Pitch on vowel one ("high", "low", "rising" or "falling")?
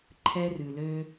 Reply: high